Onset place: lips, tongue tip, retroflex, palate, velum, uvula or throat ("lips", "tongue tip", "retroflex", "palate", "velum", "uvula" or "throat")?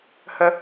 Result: throat